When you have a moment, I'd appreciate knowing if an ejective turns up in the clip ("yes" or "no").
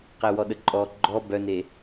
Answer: yes